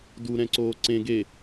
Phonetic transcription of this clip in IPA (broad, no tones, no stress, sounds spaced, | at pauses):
d u ɾ ɛ̃ ǀ oː ǀ ẽ ɡ e